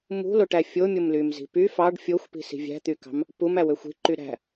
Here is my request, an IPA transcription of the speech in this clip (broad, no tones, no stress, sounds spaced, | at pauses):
m ṳ l o ʈ æ fʲ o mʲ o m l y m z i̤ p y f ɑ ɖ fʲ o xʷ p i̤ s i̤ vʲ æ̤ t̪ y k ɑ̤ m | p u m æ w ø xʷ i̤ ǃ y ɾ æ̤